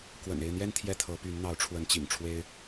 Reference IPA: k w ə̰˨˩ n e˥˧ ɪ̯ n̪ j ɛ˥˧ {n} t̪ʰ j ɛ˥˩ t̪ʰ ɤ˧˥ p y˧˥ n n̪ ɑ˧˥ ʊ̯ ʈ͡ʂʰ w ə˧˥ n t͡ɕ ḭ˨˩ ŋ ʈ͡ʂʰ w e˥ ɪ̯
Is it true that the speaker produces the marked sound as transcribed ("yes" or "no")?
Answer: yes